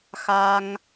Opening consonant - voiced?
no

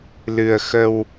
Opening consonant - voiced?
yes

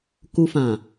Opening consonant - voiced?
no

